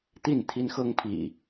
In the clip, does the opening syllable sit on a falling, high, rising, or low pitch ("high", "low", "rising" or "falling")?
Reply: falling